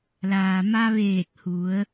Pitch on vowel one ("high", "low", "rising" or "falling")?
low